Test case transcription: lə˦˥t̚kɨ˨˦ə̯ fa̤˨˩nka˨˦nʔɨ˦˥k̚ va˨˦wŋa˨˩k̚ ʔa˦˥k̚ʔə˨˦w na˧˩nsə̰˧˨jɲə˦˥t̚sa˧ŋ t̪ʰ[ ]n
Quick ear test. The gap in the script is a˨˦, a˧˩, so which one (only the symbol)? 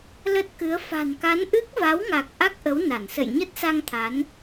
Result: a˨˦